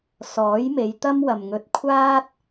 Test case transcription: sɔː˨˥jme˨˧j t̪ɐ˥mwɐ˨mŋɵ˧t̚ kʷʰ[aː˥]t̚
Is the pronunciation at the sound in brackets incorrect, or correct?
correct